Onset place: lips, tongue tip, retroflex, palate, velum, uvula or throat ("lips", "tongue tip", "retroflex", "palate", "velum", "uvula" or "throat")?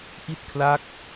throat